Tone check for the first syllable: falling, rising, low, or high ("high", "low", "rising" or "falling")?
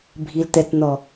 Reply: low